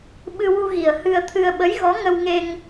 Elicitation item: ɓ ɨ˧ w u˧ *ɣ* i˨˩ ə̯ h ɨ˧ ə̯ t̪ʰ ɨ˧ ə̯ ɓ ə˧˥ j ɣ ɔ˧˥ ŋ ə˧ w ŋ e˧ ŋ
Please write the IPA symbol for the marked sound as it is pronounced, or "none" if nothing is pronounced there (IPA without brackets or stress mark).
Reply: ɣ